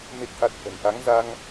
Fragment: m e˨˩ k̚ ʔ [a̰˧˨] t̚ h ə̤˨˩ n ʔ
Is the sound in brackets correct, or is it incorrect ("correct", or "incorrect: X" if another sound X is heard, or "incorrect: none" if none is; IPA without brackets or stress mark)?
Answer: incorrect: a˨˩